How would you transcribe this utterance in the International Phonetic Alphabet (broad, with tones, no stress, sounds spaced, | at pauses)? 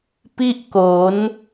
p i˥˩ ʔ k o˩˦ n